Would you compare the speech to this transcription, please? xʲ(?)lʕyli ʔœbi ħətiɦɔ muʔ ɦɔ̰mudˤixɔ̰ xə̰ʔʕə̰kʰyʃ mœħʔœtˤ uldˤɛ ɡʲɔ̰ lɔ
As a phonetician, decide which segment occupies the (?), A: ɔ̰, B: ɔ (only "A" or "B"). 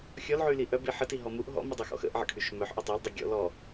B